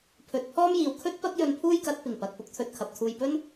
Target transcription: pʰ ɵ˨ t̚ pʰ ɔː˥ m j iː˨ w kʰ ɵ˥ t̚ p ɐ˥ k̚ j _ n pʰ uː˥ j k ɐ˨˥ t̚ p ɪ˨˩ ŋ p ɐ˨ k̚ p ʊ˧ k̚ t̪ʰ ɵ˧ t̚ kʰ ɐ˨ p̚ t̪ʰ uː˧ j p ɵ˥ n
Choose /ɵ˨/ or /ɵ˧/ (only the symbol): ɵ˧